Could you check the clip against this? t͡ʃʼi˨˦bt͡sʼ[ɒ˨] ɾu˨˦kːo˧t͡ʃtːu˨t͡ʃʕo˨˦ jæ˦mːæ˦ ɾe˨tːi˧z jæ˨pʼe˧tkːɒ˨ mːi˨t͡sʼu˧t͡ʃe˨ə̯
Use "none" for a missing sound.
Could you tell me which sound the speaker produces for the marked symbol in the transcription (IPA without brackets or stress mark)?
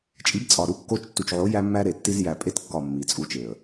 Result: ɒ˨